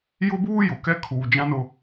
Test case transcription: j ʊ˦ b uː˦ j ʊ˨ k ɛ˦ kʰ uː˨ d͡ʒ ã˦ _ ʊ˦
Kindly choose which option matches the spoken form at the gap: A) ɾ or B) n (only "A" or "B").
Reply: B